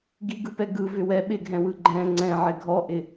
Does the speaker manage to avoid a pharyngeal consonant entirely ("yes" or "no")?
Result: no